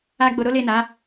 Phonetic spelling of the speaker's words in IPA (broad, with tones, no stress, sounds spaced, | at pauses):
a˦ ɡ͡b o˧ ɾ o˦ l e˦˨ n a˨˦